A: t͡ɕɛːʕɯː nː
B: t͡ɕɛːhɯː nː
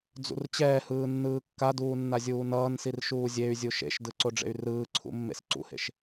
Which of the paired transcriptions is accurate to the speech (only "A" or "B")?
B